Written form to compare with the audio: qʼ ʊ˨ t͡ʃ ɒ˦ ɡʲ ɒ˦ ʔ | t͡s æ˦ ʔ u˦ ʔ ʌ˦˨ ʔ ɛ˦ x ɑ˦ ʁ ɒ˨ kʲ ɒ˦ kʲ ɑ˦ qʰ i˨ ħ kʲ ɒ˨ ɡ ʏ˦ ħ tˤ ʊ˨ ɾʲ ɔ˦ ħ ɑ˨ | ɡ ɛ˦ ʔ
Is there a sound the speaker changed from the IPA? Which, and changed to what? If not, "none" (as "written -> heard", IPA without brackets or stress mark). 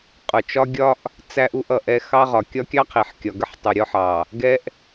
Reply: ʏ˦ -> ə˦